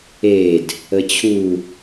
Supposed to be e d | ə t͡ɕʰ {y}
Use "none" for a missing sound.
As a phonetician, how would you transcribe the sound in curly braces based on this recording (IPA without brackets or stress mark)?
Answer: u